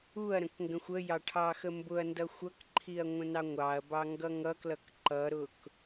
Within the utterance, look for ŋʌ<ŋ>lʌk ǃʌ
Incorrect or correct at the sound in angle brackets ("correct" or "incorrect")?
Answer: incorrect